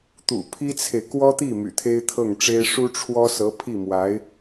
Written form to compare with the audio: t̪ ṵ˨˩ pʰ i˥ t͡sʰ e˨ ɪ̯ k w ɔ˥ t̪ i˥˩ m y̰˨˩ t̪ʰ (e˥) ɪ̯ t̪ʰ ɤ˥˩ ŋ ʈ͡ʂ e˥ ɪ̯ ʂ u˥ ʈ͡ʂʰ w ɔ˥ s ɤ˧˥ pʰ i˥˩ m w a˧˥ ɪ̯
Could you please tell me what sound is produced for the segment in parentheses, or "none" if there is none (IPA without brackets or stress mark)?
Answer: e˥